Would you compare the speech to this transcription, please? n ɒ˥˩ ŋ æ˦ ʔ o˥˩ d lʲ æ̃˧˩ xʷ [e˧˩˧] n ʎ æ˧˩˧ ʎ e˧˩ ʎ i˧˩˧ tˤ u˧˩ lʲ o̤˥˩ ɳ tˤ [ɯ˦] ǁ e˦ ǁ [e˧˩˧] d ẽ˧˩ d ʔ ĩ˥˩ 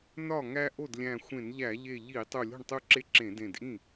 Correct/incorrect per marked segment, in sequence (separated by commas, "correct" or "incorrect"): incorrect, incorrect, incorrect